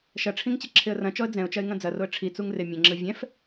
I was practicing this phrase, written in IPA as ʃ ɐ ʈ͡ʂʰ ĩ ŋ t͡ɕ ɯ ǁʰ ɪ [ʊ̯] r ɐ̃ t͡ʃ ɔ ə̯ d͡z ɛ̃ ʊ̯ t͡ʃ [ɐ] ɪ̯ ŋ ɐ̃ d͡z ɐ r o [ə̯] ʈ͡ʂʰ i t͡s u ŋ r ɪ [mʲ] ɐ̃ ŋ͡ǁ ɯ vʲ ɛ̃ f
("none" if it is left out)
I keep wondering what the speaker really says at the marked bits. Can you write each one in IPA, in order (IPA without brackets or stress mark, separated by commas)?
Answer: ə̯, ɐ, ə̯, mʲ